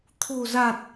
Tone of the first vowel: low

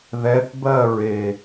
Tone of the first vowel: rising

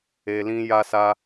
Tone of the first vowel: low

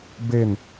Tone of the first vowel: falling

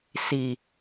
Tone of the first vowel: low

